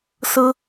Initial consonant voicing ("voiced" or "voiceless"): voiceless